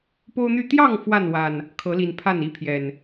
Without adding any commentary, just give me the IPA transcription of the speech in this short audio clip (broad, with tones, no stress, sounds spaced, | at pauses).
p o˦ ʊ̯ n̪ y˥˨ t̪ j ɑ˥˨ ŋ f w a˥˨ n w a˨˩ n | kʰ ɤ˨˦ l i˨˩ n pʰ a˥˨ n i˥˨ pʰ j ɛ˨˩ n